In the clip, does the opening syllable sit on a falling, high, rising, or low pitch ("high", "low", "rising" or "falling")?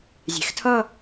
rising